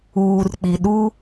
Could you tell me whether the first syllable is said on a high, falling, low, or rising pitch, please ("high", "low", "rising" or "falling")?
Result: low